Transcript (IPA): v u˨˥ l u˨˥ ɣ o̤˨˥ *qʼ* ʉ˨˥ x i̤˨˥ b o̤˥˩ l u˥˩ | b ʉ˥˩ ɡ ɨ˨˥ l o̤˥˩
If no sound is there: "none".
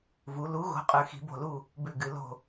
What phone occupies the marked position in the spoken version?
qʼ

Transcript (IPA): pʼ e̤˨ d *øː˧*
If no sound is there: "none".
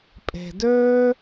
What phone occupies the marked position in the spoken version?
øː˧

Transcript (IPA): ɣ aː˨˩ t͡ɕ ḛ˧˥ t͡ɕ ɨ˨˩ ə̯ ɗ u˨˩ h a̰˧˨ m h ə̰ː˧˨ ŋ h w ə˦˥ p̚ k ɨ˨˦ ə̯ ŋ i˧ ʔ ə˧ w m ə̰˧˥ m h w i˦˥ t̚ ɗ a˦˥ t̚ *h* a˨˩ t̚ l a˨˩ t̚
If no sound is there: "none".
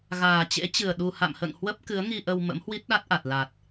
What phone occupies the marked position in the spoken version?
ʔ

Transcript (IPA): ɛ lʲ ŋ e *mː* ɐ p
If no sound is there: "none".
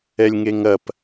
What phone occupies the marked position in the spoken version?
ŋ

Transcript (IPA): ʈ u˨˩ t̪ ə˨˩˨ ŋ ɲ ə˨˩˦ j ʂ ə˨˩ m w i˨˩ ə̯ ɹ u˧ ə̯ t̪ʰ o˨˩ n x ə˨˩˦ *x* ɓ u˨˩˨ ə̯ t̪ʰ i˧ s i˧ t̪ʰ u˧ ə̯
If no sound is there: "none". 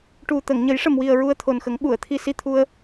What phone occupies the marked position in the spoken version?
ŋ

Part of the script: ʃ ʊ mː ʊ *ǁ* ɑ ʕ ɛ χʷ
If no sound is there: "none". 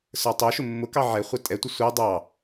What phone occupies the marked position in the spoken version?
k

